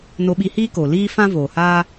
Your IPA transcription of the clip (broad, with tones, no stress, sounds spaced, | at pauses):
n o˧ ɓ i˧ h iː˦ k o˨ l iː˦ f ã˦ v oː˨ h aː˦